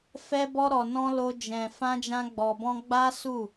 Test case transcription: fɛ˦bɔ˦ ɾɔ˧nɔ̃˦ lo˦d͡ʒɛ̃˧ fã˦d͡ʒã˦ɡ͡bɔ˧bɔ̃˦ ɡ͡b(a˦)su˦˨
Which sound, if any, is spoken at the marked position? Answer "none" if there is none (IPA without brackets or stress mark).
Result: a˦